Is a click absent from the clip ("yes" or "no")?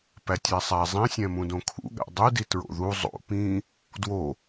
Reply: yes